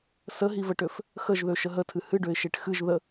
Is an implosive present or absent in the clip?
absent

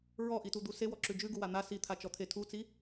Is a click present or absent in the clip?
present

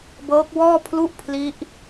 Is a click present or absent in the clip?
absent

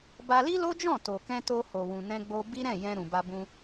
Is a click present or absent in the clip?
absent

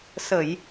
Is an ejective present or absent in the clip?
absent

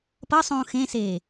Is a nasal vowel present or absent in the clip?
present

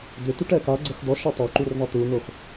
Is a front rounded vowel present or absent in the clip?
present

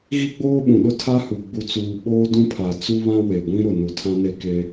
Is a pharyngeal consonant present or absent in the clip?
absent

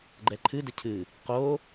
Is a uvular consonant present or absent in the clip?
present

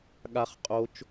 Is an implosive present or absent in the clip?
present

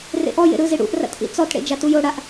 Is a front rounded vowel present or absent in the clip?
absent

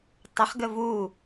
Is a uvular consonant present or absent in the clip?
present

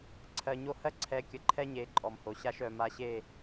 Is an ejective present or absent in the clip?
present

